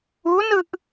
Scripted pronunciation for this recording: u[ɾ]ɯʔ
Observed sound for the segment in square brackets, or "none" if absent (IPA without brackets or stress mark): n